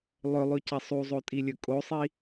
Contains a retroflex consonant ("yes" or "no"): no